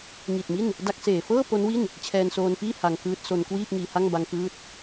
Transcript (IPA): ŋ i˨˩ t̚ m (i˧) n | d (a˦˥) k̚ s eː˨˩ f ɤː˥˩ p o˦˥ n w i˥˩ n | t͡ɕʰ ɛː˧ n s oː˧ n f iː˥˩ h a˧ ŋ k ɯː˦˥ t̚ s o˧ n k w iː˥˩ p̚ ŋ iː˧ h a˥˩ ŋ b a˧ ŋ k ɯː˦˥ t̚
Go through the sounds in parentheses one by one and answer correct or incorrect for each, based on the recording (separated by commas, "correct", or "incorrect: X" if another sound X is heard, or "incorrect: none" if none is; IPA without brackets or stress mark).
incorrect: i˥˩, correct